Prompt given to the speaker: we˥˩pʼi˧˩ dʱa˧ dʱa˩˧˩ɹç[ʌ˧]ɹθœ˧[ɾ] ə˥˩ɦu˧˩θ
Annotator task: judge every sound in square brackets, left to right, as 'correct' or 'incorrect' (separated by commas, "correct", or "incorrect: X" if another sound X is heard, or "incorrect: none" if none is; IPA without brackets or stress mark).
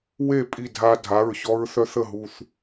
incorrect: ɔ˧, incorrect: θ